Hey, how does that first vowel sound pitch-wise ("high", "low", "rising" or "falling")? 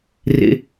high